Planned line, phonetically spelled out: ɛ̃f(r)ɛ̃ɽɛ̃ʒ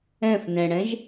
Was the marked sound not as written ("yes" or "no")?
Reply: yes